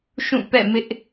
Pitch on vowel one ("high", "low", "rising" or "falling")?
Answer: falling